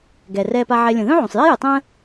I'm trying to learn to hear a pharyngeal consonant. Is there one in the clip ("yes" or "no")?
yes